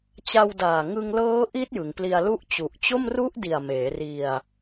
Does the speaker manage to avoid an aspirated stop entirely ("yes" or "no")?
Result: yes